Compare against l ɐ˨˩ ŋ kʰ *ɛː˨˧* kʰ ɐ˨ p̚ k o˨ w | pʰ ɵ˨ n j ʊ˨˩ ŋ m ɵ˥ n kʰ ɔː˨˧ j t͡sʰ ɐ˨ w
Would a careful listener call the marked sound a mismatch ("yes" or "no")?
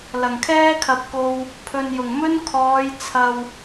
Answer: yes